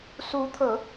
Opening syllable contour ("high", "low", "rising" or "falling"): rising